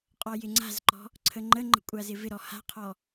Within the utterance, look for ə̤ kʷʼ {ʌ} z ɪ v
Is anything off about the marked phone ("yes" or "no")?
yes